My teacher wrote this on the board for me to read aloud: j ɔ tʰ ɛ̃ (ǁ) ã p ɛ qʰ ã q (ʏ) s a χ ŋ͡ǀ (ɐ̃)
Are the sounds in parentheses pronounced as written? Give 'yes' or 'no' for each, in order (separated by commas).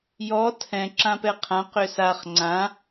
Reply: yes, yes, no